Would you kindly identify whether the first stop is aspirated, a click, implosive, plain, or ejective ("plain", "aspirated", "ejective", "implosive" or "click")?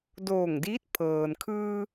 plain